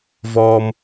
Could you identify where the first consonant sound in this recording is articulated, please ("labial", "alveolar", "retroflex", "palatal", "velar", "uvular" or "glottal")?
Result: labial